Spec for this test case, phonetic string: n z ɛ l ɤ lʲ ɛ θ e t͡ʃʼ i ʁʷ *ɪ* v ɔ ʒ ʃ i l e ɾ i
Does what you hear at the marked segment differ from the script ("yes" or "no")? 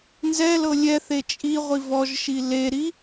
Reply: yes